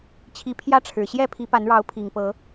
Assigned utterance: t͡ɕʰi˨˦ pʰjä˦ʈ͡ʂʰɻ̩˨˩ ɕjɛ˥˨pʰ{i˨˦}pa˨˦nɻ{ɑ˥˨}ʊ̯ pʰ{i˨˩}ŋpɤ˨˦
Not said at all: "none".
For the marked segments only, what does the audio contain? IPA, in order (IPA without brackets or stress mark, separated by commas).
i˨˦, ɑ˨˦, i˨˩